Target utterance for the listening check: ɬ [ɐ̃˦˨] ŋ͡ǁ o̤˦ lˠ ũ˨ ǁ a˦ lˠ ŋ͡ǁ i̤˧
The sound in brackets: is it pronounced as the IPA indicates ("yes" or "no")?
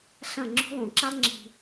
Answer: yes